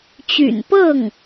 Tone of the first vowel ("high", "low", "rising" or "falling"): low